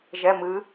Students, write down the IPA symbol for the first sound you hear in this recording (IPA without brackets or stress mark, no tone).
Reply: ʒ